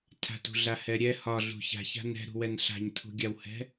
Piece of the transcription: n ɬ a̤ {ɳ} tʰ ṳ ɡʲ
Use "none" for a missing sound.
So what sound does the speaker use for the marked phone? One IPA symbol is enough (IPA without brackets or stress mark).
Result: ɲ